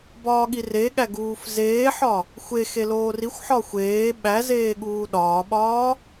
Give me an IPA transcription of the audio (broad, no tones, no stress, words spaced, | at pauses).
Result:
bɒːɠireɠæ ɡuːfzeːħɒ | xʷe xeloːrixʷħɒ xʷeː ɓæzeː ɠuːɗɒːɓɒː